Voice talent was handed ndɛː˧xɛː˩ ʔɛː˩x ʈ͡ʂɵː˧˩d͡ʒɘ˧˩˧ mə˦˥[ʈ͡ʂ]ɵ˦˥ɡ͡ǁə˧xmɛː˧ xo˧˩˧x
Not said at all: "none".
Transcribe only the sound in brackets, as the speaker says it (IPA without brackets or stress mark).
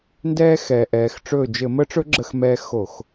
ʈ͡ʂ